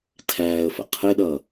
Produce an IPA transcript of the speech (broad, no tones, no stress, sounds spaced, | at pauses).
tʰ æː ə̯ f ə̰ qʰ ɪ ɗ ʌ